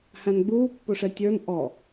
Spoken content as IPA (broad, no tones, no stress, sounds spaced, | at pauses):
h æ̃ n ɡ͡b uː pː ʊ ʂ ɛ tʲ ə˞ n ʔ ɔ